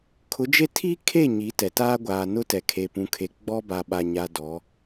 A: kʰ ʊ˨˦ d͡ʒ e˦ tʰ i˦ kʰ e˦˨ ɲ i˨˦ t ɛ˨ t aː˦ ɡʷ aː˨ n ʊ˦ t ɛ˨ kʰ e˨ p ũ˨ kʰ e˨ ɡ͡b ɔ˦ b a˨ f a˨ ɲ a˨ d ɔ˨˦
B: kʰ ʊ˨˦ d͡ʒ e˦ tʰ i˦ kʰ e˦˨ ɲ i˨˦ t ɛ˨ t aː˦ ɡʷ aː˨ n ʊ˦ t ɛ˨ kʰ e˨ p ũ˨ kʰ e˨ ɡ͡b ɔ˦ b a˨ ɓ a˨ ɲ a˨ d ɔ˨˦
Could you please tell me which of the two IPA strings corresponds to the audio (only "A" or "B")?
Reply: B